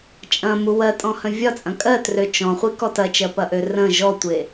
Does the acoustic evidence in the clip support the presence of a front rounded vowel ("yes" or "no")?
yes